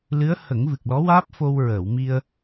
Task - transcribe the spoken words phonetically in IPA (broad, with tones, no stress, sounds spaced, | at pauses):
l ɨ˧˥ ə̯ h ə˨˩˦ ŋ v ɨ˨˩ k̚ l ɔ˧˥ w aː˦˥ p̚ f o˧ w ɹ əː˨˩˨ w m i˧ ə̯